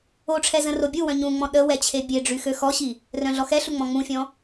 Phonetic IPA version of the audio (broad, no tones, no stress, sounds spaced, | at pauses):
o ʈ͡ʂʰ ɛ z ə̃ r o bʲ u w œ̃ ɲ ũ ŋ͡m ɔ̃ ɗ ə w ɛ t͡ɕʰ e bʲ e ɖ͡ʐ y x ø x ɔ ɕ i | r œ̃ ɮ ɔ x ɛ ɬ u ŋ͡m ɔ̃ ŋ͡m ũ fʲ ɔ̃